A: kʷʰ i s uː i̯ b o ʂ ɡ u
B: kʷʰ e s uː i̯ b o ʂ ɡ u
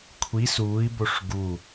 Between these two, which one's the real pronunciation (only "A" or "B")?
A